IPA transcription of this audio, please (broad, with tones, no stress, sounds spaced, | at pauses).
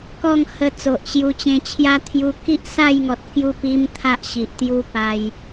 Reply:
k ɔ˥˧ ŋ h ə˧ t͡s o˨ ʔ ɕ j u˧ t͡ɕ ẽ˧ t͡ɕʰ j a˦ t̪ʰ j u˧ k i˦ ʔ s a˥˧ j ŋ ɔ˨ t̚ k j u˥˧ p i˦ m t̪ʰ a˦ ʔ ɕ i˨ ʔ t̪ j u˦ p a˧ j